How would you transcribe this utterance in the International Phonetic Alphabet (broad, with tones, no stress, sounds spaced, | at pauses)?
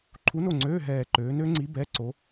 ǃʰ u˧˥ n o˦˨ ŋ͡ǀ øː˧˥˧ ɦ ɛː˦˨ ǃ øː˧˥ n ø˧˥ ŋ͡ǀ i˧˥ b ɛ˧˥˧ ǀ o˧˥